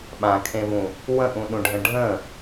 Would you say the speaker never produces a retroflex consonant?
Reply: no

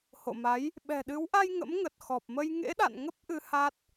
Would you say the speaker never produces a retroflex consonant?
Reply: yes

